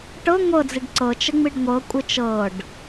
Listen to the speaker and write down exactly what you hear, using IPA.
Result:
ʈ ɤ ŋʷ ɤ d͡z i ɖ ǀ ɤ t͡ʃ ə ŋ͡m i ɖ ŋʷ ɤ kʷʼ ɨ t͡ʃ ɤ ɖ

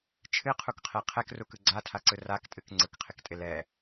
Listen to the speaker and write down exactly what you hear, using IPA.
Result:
t͡ʃʰ ɨ qʰ u k qʰ ɛ qʰ ɛ k r u k ɯ ɡ͡ǀ a tʰ a ǀ ɯ r a k tʼ ɨ k ŋ͡ǀ ɯ k qʰ ɪ k tʼ ɪ l ɛ

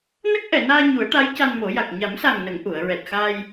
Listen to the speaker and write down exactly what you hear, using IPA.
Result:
n ə˦˥ k̚ ʔ ɛ˨˩˨ n aː˧ ɲ u˨˩˦ ə̯ ʈ a˧˥ j c a˧ n m o˨˩˦ j a˨˩ k̚ ɲ a˨˩˦ m s a˨˩ ŋ n ə˨˩˨ ŋ ʔ u˨˩˨ ə̯ ɹ ɛ˨˩ t̚ x a˧ j

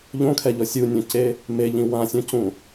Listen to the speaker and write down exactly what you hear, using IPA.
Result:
ʎ õ kʰ ɛ ʎ ɔ sʲ u nʲ õ c e | m e ʎ ĩ w ã sʲ õ c ũ

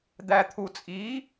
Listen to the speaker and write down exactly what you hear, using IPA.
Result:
d̪ æ˨ t̪ʰ u˨ t͡sʼ i˨˦

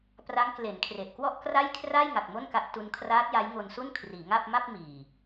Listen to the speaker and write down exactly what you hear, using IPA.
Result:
p r a˦˥ ŋ k l e˩˦ n kʰ r e˨˩ ʔ k w ɔ˥˩ ʔ k r a˥˩ j kʰ r a˥˩ j ŋ a˨˩ k̚ m o˥˩ n k a˦˥ ʔ t u˦˥ n kʰ r aː˦˥ t̚ j a˦˥ j ŋ o˧ n s u˥˩ n kʰ r iː˩˦ ŋ a˥˩ p̚ m a˥˩ p̚ m iː˨˩

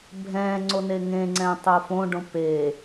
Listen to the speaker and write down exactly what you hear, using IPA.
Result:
bʱ ɛ̃ ŋ͡ǀ o n e ŋ ẽ ŋ͡ǀ ɛ̃ tˤ o f õ ɖ õ p e

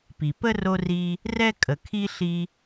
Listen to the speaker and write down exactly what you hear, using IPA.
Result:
p i˩ p ə˥ r o˦ r i˦ | r ɛ˥ kʼ ə˨ kʰ i˥ ɬ i˦

